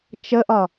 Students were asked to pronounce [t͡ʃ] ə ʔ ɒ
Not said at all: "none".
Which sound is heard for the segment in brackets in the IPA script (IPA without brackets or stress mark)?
t͡ʃ